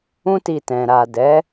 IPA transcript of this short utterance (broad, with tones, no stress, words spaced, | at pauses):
ũ˦ti˧tɛ̃˨ ɾa˨dɛ˨˦